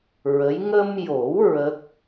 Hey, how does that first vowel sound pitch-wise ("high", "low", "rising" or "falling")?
rising